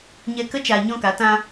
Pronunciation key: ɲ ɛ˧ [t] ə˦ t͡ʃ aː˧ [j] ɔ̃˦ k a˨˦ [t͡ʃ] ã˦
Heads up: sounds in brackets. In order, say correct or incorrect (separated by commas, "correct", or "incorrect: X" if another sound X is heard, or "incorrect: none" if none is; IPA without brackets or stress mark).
incorrect: k, incorrect: ɲ, incorrect: t